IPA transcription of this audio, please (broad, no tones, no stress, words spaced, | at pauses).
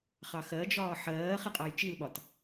χɑxɜd͡ʒɒː ħɜː χɪqʼɑjt͡ʃilɓɒt